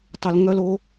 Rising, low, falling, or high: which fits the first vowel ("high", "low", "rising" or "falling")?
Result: low